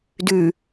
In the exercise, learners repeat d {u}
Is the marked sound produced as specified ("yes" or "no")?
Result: no